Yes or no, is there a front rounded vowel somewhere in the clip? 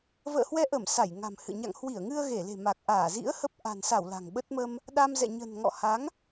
no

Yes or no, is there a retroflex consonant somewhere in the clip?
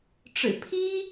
yes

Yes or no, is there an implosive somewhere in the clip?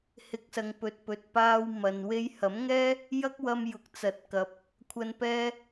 no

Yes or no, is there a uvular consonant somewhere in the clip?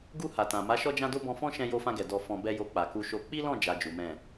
no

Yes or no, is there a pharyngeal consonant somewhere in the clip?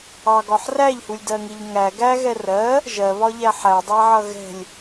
yes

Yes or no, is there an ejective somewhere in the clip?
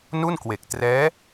no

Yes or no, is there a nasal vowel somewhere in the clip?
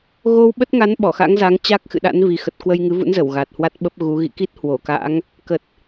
no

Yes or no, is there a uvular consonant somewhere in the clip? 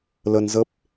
no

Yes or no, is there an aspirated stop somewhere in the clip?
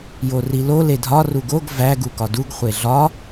no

